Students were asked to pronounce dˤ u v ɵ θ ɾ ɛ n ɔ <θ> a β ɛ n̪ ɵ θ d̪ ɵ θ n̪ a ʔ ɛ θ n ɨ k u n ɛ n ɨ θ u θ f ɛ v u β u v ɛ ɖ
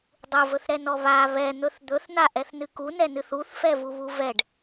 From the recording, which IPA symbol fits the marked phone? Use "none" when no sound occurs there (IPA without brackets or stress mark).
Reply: β